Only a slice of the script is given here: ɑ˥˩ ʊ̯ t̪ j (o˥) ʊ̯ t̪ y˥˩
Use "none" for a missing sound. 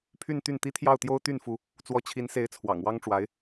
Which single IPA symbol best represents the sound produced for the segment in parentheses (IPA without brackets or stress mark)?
o˥